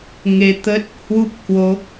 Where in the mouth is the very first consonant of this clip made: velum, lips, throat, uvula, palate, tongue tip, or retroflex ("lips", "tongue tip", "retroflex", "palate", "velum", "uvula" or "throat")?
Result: velum